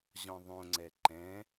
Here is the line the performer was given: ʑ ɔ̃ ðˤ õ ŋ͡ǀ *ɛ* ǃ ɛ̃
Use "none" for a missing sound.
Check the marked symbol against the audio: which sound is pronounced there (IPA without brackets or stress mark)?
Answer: ɛ